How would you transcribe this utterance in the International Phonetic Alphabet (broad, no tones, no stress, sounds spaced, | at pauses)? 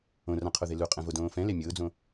õ r ã qʰ o ð e l u qʼ ɛ̃ v o d õː f ɛ̃ l e mʲ ʊː d͡z õ